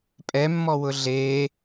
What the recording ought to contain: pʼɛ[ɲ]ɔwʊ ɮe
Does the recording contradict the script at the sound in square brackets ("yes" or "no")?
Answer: yes